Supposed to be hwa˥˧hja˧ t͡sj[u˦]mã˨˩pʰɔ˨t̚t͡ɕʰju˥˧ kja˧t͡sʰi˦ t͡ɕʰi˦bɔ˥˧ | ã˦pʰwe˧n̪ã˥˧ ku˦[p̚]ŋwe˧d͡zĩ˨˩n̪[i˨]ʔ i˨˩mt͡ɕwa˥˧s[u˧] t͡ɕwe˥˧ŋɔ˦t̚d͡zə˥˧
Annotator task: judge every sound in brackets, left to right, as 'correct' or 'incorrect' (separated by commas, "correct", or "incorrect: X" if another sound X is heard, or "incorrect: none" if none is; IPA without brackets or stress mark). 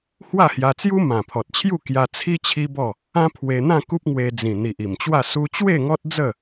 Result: correct, correct, correct, incorrect: u˦